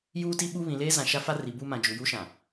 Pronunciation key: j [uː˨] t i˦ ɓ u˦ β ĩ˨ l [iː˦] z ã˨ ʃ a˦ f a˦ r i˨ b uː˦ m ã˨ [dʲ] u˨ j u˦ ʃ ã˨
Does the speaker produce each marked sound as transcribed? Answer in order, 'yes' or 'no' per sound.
no, no, no

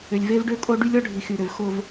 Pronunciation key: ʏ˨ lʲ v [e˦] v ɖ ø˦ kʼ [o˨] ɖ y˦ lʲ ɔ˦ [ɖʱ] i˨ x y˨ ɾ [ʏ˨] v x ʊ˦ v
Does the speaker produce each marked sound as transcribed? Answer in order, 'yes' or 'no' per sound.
yes, no, yes, yes

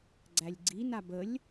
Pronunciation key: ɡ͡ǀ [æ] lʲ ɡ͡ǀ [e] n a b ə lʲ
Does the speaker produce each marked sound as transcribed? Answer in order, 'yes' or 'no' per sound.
yes, no

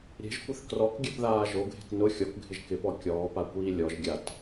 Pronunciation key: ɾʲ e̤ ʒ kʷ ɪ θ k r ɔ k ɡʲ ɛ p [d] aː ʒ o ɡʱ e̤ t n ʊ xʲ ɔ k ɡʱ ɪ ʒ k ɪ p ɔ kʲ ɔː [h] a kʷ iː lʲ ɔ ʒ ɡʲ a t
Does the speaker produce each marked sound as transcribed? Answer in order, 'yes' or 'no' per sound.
no, no

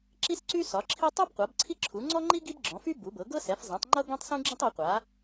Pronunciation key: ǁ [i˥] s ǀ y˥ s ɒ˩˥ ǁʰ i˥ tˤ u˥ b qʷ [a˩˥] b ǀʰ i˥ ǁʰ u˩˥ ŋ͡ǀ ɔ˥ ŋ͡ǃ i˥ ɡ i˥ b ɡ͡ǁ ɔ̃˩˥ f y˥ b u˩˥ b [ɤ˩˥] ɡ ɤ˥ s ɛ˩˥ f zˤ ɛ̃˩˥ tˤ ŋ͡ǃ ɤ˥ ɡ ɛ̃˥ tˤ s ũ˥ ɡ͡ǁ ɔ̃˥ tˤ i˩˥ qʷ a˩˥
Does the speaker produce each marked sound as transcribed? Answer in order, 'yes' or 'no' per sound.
yes, yes, yes

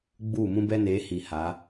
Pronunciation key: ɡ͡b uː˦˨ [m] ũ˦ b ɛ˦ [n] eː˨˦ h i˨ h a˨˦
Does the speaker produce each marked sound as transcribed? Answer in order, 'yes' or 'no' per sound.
yes, yes

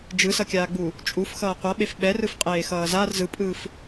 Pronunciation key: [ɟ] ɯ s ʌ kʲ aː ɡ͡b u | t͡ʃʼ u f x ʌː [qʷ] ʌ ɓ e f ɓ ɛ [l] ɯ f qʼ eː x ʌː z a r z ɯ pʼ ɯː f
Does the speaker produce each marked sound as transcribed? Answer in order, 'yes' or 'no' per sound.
no, yes, no

